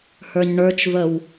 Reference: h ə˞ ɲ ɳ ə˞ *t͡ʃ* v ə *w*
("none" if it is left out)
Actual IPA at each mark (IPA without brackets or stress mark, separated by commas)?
t͡ʃ, w